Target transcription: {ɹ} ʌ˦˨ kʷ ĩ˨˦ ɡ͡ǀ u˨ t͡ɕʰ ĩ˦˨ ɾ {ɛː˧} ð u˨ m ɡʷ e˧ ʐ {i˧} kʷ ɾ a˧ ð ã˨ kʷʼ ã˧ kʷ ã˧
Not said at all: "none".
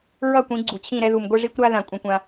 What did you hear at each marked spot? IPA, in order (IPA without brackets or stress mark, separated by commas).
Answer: ɹ, ɛ˧, i˧